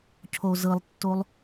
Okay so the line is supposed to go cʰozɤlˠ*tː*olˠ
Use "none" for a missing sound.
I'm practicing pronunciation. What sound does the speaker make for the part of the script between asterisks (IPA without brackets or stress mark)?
tː